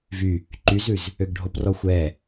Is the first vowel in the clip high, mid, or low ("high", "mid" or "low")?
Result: high